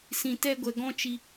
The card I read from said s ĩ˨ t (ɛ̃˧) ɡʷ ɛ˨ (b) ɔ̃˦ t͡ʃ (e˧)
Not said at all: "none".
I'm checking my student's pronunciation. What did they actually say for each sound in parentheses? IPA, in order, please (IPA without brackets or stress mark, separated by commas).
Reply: ɛ˧, ɡ, i˧